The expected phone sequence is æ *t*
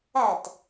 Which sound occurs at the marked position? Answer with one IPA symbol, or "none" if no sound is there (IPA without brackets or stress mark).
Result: t